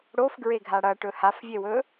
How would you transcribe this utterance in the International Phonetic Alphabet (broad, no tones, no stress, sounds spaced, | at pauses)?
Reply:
ɽ o f ɡ ɹ e ɡʱ a ɽ ɐ ʈ ɵ h a f vʲ e w ɵ